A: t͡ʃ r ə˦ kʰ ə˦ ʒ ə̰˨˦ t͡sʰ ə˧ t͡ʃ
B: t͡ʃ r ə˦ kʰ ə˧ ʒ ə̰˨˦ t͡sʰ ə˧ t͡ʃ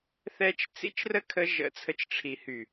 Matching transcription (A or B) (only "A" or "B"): B